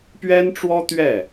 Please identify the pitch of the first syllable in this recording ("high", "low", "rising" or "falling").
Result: high